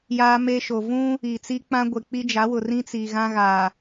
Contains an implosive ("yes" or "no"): no